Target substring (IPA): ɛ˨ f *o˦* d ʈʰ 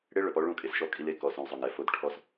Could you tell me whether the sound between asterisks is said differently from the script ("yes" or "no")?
no